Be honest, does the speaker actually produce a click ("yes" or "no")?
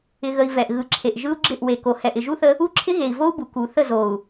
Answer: yes